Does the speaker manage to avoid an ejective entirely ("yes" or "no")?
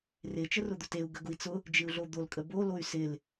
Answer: no